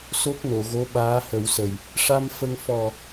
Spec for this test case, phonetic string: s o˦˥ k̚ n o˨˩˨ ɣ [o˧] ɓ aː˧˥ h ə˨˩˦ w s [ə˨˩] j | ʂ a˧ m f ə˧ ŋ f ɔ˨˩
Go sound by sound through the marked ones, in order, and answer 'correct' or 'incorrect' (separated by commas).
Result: incorrect, correct